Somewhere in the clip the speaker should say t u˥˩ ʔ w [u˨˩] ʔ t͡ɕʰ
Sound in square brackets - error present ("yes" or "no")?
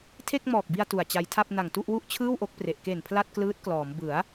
yes